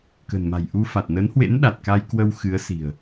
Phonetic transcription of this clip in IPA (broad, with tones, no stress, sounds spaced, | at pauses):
k ə̤˨˩ n m a̤˨˩ j ʔ u˧ f a˨˩ t̚ n ə˨˦ n h w ḛ˧˥ n ɗ a˨˩ t̚ k a˧ j k w ə˧ w x ɨ˨˦ ə̯ s i̤˨˩ ə̯